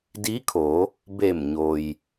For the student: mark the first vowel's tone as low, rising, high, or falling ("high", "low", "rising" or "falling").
rising